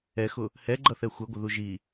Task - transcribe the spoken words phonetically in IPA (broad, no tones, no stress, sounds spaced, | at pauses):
ɛ x ʊ | h ɛ ɡ͡ǃ ʌ θ ɛ xʷ ɛ ɡʷ ə ð u ʒ i